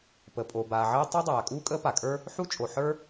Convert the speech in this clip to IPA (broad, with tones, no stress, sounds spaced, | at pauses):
p ə˩ pʼ o˩ b aː˩ ʕ ɜ˥ tˤ ɜ˥ dˤ aː˩ kʼ uː˥ kʼ əː˥ p a˩ kʼ ə˞˥ | ħ u˥ t͡ʃʼ o˩ ħ ə˞˥